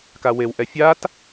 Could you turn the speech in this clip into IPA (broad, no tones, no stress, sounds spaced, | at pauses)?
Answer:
k a w e w ʔ ɛ fʲ a t